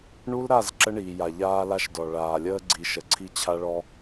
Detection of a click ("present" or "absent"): present